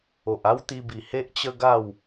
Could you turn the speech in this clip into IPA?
o˨ ʔ a˦ w t̪ i˧ b i˨˩ h e˦ ʔ t͡ɕ ə˦ ɡ a˥˧ w

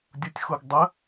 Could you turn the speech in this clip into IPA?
dʲ u tʲ x u ɡ dˤ ə

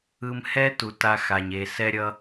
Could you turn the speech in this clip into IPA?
ɯ˧ m h ɛ˦ t u˨ t a˧ x a˨ ɲ e˨ s ɛ˦ ɾʲ ʌ˦

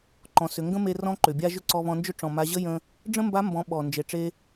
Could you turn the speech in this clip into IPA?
ǃ ɔ̃˩˧ s ʏ˩˧ ŋ ɡ ə̃˥ m e˧ r ɔ̃˧˥ ǃ ʏ˩ bʲ a˧ ʒ ʏ˥ ǀ ɔ˧ β ɔ̃˧ n d͡ʒ ʏ˥ ʈ͡ʂ ɔ̃˩ m a˩˧ ʑ ə˥ j ə̃˧ | ɖ͡ʐ ə̃˥ m b a˧˥ m b ɔ̃˩˧ ɓ ɔ˩ n d͡ʒ e˩ ʈ͡ʂ e˧

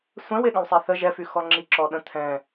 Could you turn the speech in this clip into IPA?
sʷ ɛ̃ w e ɠ ə̃ w sˤ e θ ə ʒ ɛ f y x ɔ ŋ͡ǁ i ǁ ɔ ɗ ə̃ t̪ʰ ɛ̃

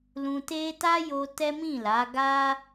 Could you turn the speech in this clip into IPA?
l ũ˧ t e˦ t a˦ j o˧ t ɛ˦ m ĩ˦˨ l a˨˦ ɡ a˦

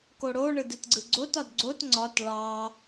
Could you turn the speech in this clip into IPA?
k o ɽ o ɳ ɯ d ɯ t ɡ͡ǀ ɯ ɡ͡ǀ o t ɒ d ɡ͡ǀ o t ŋ͡ǀ ɒ t ɭ ɑ

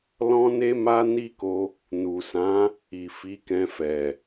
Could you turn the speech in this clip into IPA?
l ɔ̃˦ n e˦ m a˦ n i˦ k o˧ | n u˨ s ã˨˦ | i˨ f i˨˦ k ɛ̃˧ f ɛ˨

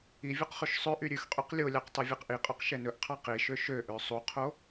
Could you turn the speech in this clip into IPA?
i vʲ u q χ ʉ ʃ sˤ ø ʔ y ɾʲ ʉ x qʼ y q lʲ o lʲ ɑ q tˤ y vʲ ɛ q ʔ i qʼ œ q ʃ ɛ n ɵ ʔ qʰ ɑ q i ʃ ø ʃ ø ʔ ø sˤ u qʰ o

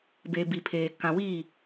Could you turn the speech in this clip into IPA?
b e˨ b i˨ pʰ eː˨ k ã˨ w i˦˨

